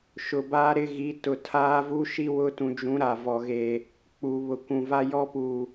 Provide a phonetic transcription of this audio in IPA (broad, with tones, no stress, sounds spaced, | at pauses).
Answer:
ʃ ʊ˨ b aː˦ ɾ ɪ˦ ɣ i˨˦ t ʊ˨ tʰ aː˦ v u˦ ʃ i˦ w ʊ˦ t ũ˨ d͡ʒ ũ˨˦ ɾ a˨ v ɔ˨ ɣ e˨ | k͡p u˨ β ʊ˨ kʷ ũ˨ v a˦ j ɔ˦ p u˨